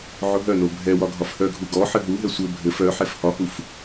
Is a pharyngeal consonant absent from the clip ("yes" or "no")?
no